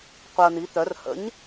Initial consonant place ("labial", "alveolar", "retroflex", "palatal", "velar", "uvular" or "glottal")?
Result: uvular